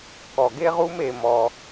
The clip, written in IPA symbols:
kɔ˩ɡe˥ʁu˥m e˩mɔ˩

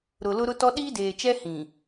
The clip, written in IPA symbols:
ɾʊ˨lʊ˦ɾʊ˦tɔ˦ ɗiː˦deː˨t͡ʃɛ˦ hĩ˨

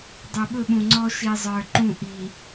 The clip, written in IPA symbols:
dˤu˨ɓɵ˦˨ ɓũ˨ŋ͡ǀɔ˦ ʃi˨zˤə˞˨ ǃũ˦˨ʔi˨

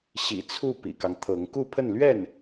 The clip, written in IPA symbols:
ɕḭ˨˩t͡sʰu˥˩ pḭ˨˩kɑ˦ŋt̪ʰɤ˧˥ŋ ku˥˧pʰə˥˧nlɥɛ˥˩n

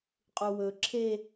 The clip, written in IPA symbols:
qʼuwɵ ǁʰe

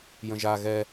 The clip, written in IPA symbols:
jə̃ʒa ɣɛ

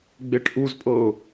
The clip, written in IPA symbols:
ɡ͡beʈʔuzpʼɤʊ̯

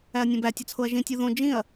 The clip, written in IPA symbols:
æɐ̯nʲõbæ tʲɒt͡sʰoɐ̯ʒĩ tʲuðõ d͡ʒĩɐ̯

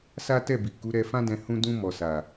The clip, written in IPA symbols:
sa˦tɛ˦˨bi˨ku˨˦ ɾɛ˧fã˦dɛ̃˧ hũ˧dũ˧ mɔ˨sa˨

